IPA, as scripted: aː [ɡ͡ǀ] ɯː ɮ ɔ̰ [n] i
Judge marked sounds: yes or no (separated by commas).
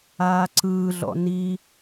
no, yes